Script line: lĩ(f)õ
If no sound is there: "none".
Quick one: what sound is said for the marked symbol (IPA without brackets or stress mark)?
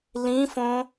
f